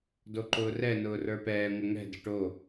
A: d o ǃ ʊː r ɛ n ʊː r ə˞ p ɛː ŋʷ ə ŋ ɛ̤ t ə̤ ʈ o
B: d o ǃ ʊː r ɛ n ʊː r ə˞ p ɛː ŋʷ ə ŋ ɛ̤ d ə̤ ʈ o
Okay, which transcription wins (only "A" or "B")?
B